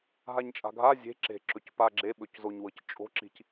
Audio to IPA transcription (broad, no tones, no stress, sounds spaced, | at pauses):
ɦ a ɲ t͡ʃʼ a̤ ɡʱ a zʲ e̤ ǁ e̤ ǁ ɵ c p a ɡ͡ǁ e ɓ ɵ c z o ɲ w ɤ c t͡ʃʼ o̤ ǁ i̤ c